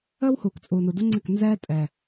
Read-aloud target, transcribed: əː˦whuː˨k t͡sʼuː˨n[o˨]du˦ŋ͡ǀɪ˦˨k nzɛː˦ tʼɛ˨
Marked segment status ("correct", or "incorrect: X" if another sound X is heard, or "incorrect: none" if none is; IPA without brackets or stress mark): incorrect: u˨